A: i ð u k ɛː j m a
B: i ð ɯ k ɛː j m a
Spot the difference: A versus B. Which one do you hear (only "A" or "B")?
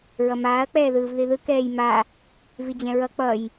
B